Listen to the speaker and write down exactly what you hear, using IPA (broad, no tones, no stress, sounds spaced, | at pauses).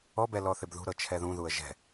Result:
ɔ b ɛ l ɔ θ ɪ b ð ṳ ɾ ɤ t͡ʃʰ ɛ ð ũ ð u ə̯ ʒ ɛ̤